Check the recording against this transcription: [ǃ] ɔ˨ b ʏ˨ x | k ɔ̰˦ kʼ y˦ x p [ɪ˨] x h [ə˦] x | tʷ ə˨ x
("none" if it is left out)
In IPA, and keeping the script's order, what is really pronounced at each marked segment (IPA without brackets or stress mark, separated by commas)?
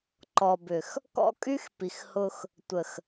ǃ, i˨, ʊ˦